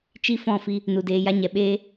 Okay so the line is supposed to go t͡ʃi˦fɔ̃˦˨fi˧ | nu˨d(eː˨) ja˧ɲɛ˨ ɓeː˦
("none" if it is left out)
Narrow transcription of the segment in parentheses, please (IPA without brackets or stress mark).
eː˧